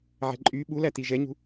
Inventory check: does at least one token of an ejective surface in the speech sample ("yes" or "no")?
yes